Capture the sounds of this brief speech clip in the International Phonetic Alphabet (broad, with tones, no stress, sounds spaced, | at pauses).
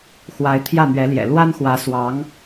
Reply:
x w a˧˥ ɪ̯ t̪ʰ j ä˥˩ n̪ ɥ ɛ˧˥ l j ɛ̰˨˩ l w a˥ n x w ä˧˥ s w ɑ˧˥ ŋ